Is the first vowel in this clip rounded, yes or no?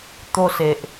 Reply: yes